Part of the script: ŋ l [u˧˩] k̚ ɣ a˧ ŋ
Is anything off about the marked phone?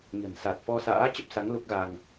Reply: yes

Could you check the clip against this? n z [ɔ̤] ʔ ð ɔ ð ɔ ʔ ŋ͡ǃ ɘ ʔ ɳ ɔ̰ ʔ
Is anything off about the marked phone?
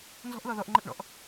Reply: no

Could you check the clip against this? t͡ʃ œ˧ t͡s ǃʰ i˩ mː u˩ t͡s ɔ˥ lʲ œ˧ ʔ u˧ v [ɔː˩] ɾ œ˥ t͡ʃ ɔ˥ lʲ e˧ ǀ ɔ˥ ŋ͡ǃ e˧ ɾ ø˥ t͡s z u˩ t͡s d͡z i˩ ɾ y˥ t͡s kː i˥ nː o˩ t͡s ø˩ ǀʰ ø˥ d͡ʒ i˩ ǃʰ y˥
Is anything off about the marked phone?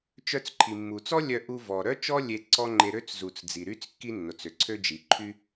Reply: yes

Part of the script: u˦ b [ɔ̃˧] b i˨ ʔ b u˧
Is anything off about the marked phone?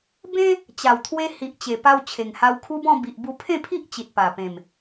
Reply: yes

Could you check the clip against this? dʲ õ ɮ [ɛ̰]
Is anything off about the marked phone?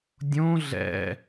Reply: no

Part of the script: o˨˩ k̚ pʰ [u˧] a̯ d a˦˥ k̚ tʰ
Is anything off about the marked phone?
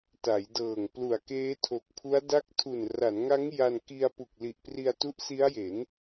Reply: yes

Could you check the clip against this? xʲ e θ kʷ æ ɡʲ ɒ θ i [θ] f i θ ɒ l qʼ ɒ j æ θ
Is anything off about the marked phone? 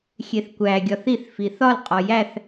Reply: no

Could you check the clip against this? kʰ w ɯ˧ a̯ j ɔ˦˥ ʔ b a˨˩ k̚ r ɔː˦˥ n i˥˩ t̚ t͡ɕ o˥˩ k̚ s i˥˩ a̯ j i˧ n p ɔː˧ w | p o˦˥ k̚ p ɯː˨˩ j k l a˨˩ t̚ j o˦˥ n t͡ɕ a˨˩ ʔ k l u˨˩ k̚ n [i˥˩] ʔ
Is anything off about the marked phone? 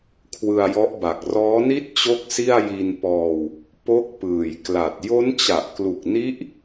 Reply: yes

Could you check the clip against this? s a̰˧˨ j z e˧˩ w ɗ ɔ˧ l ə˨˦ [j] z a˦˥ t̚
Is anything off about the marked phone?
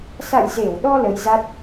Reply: no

